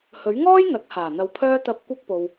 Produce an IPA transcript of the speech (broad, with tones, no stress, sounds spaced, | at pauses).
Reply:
h ɵ˨˥ ɥ ŋ ɔː˥ j n̪ ɐ˨˥ k̚ h aː˨˩ n̪ ɐ˧ w pʰ œː˥ t̪ ɐ˧ p̚ kʷ ɐ˥ k̚ p o˧ w